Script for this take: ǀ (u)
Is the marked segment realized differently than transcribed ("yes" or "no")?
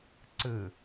yes